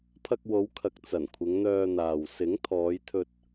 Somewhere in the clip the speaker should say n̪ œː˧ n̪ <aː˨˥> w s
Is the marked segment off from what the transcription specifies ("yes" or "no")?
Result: yes